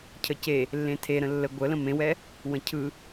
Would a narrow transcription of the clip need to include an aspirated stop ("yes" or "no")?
yes